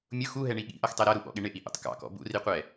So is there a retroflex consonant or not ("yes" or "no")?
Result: yes